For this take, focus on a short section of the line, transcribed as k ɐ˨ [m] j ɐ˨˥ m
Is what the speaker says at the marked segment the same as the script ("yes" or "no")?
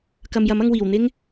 yes